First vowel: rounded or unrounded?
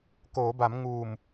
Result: rounded